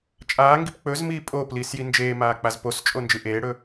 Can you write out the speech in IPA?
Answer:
t͡ʃʼ aː ŋ ɡ i p k͡p ɵ z m iː pʼ oː p l iː s j i n d͡ʒ eː m aː k͡p a z p o s t͡ʃʼ o n d͡ʒ ɨ ʔ eː ɽ ɵ

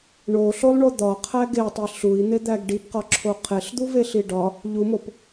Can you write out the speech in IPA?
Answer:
ɳ o ɬ o lˠ ɳ o d̪ ɒ qʰ æ ɡ e tˤ i ɬ u i̯ n̪ e d̪ æ ɡ ɖ i b q ɒ ǁʰ o qʰ e ɬ d̪ u v e ɬ i ɖ ɒ | ʎ u m o p

